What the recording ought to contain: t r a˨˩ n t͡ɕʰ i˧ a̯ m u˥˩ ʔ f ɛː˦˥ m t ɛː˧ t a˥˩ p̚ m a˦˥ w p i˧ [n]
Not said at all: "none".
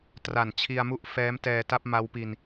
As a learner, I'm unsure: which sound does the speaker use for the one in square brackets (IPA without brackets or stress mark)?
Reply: n